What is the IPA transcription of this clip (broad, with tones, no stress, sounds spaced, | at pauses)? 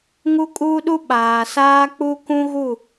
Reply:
ŋ u˦ kʼ uː˦ ɗ u˦ ɓ aː˨ s aː˦ k͡p u˦ k ũ˦ ɣ u˦˨